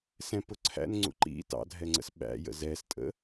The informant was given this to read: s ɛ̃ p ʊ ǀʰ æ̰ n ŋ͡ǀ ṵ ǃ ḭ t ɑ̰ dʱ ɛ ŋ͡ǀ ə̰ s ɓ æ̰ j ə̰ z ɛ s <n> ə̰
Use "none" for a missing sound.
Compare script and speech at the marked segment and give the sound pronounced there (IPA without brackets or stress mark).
tʼ